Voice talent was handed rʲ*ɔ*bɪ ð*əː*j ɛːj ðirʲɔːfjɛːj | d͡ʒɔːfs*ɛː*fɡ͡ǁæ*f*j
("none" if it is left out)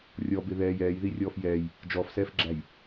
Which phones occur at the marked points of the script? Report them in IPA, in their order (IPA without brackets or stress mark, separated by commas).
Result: ɔ, ɛː, ɛː, none